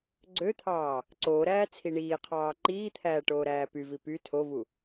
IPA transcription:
ɡ͡ǀøt̪ʰɑː | ǀoːɾæː t͡sʰiɳiːqʰɑː ǃiːt̪ʰæː ʈoːɾæːpyvi py tʰovu

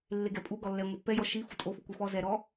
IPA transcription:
lːeɡɛpʼu ɡɔlːɛ ŋʷipːɛjɔ ʃifu tʼofu kʷifɔ zɛɾɔ

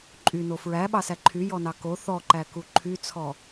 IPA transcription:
ǃʼyno fɹæɓɑsæ ǃʰyjɔnɑ ko θɔǃæku ǃʰyt͡sʰɔ

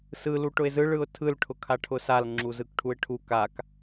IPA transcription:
sɯ luʈʊɪ̯zɯ ɭɯʊ̯tʰɯl ʈʰʊkʰaʈʰʊsal ŋ͡ǁuzɯkʈʰuɪ̯ʈʰu kak

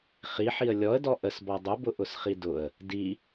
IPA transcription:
χiħiə̯ lʲɔə̯dɔ ʔəsbɔ dˤʊbʊʔʊsχi dʊə̯ | di

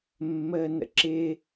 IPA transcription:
mːəːnə̰ǁɪː

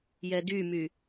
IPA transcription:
jɛdymy

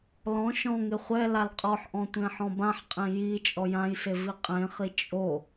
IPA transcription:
lɔ̃ ʃɔ̃ŋɪ χʷɛ lalqʼɔħʔɔ̃ tʷẽħɔ̃bãħqʼẽ ji t͡ʃʼɔjãjse viqʼẽχi t͡ʃʼo

